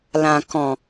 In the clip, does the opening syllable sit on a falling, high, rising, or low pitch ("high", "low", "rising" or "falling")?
low